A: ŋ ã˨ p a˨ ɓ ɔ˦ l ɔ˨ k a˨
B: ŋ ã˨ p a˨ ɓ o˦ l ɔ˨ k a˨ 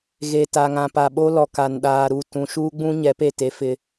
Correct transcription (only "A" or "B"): B